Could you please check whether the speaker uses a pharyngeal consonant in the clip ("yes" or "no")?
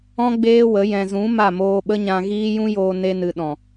no